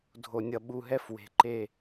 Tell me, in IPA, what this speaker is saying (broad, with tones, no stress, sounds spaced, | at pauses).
dʱ o˨ nʲ ʌ˨ ɓ u˨ ɦ ɛ˦ f w e̤˨ ǃ e˦˨